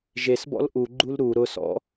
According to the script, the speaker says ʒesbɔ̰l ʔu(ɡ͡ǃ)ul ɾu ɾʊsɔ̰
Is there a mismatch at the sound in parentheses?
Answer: no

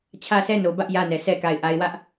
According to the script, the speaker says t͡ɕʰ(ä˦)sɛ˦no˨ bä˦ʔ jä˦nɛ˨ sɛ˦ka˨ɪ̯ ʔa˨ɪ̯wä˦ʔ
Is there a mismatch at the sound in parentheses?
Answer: no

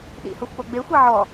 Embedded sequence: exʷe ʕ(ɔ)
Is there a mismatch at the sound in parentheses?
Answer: no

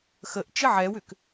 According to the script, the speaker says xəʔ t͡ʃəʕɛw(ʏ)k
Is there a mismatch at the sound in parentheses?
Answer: no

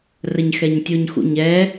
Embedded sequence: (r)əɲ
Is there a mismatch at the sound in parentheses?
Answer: no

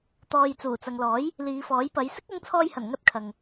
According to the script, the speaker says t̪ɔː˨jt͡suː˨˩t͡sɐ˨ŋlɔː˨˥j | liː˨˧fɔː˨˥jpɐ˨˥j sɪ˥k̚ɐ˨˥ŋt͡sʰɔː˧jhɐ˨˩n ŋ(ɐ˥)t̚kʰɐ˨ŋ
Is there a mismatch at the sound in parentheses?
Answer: no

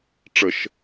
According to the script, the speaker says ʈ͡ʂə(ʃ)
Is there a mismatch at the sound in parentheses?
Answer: no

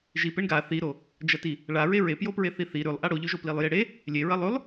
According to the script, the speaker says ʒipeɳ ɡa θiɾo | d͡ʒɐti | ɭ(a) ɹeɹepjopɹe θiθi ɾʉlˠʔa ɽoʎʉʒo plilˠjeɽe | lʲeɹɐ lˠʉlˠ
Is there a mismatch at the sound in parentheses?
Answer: no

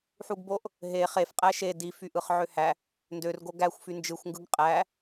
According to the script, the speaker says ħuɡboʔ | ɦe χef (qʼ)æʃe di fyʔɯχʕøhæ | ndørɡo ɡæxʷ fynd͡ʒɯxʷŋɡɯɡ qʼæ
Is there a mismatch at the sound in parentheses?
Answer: no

